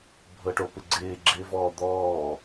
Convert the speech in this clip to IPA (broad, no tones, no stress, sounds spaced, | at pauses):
bʱ ɤ ʈ o p ɪ ɡ͡ǀ ɪː ɡ͡ǁ ɪː v ɔː d̪ ɔː